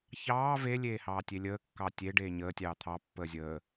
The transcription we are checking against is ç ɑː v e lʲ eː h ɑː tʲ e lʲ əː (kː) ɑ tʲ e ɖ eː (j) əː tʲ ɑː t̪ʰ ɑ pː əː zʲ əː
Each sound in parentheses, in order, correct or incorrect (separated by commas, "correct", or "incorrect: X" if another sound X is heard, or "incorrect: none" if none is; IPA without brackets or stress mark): correct, incorrect: ɲ